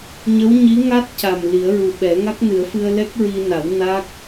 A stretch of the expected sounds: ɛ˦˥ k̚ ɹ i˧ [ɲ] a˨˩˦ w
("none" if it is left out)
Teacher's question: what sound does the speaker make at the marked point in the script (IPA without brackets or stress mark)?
n